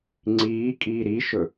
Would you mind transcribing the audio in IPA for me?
ŋ͡ǀ iː kʼ iː ɾ i ʃ ɵ

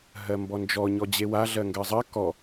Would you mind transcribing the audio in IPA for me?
ɦ ɜ m b ɔ n d͡ʒ ɔ ɲ ɔ d͡ʑ e w a ɮ ɜ ŋ ɡ ɜ zˤ ɜ k ɔ

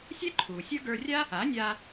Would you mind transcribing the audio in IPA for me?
sʲ ɛ˥ ǃʰ uː˩ sʲ ə˞˥ ɡ ə˞˧ rʲ a˥ | a˩˥ nʲ a˧

